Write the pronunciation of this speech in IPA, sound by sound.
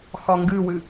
x ɒ ŋ ɡ ɨ w ɨ

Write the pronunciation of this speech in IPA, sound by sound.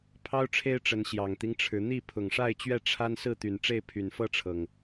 pʰ ɑ˦ ʊ̯ ʈ͡ʂʰ e˦ ɪ̯ ʈ͡ʂ ə˨˦ n ɕ j ɑ˨˩ ŋ t̪ i˦ ŋ ʈ͡ʂʰ ɻ̩˨˦ n̪ i˥˨ pʰ ʊ˨˩ ŋ ʂ a˥˨ ɪ̯ t͡ɕ ɥ ɛ˥˨ ʈ͡ʂʰ a˦ n s ɹ̩˥˨ t̪ y˨˩ n ʈ͡ʂ e˥˨ ɪ̯ pʰ y˨˩ n f ɤ˥˨ ʈ͡ʂʰ ɤ˩ ŋ

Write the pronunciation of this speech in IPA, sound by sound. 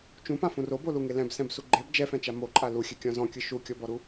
t͡ʃ ũ p ã f ũ r o b o l u ŋ e l ɛ̃ b s ɛ̃ b s u ɡ͡ǃ e b d͡ʒ ɛ f ɛ̃ t͡ʃ a m o ǃʼ a l u xʲ ɛ kʲ ɔ̃ z ɔ̃ kʲ ɯ ʃ u kʲ ɔ b ɔ ɾ u

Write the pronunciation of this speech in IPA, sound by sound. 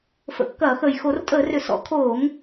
f ə̰˧˩˧ kː ɐː˧˩˧ x əː˨˩ j x o˧˩˧ r tʼ əː˧˩˧ r ʏ˨˩ s ɔ̰˧˩˧ kʰ oː˧˩˧ ŋ

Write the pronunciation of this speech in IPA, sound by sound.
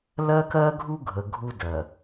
l ɜ˦ k ɜ˦ ɡʱ u˦ ɡʱ ə˨ ɡʱ u˦ d ɜ˨

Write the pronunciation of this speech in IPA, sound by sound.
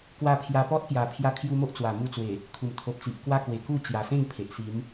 k w a˧ pʰ j a˧ p ɔ˦ t̚ p j a˨˩ pʰ j a˧ kʰ j u˧ m o˦ ʔ t͡s w a˨˩ m u˧ t͡s w e˨˩ | kʰ u˨˩ m t̪ʰ o˨ p̚ t͡s i˨ ʔ k w a˦ k w e˨˩ k u˥˧ t͡ɕ j a˨˩ s ẽ˥˧ ŋ pʰ e˨ ʔ s i˨˦ m

